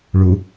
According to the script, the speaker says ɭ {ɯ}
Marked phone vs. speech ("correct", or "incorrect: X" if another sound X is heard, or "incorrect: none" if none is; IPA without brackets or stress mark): incorrect: u